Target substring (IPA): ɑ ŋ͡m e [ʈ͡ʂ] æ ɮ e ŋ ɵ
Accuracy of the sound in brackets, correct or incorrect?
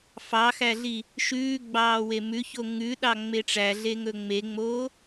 correct